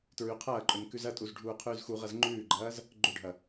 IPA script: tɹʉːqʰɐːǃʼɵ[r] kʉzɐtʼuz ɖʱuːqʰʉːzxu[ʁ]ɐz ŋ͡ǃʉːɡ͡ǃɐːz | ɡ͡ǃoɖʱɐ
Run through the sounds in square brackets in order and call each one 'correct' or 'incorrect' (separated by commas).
incorrect, correct